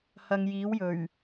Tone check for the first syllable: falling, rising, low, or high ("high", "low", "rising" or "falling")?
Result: low